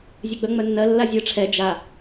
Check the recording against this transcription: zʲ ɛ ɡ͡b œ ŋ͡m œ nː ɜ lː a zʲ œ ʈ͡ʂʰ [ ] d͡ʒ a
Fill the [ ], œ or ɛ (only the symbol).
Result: ɛ